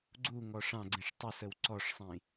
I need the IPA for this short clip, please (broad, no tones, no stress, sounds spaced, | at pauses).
ɡ͡ǀ u ŋ ɔ ʂ ɑ̃ ɡ͡ǀ ĩ ʂ tˤ ə s ə w ǀ ɔ ʂ sˤ ĩ